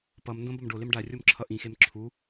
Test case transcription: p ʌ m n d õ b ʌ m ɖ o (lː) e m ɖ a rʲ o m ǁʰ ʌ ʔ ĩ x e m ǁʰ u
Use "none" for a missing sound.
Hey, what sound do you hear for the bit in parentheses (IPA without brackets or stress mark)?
l